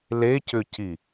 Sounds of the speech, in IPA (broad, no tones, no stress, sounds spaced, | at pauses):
l e c ʏ c i